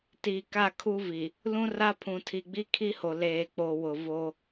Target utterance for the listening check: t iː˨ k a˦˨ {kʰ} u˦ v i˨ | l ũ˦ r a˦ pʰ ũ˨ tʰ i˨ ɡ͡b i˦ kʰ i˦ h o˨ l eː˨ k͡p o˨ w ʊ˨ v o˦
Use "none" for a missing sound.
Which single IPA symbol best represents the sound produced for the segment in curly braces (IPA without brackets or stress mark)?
kʰ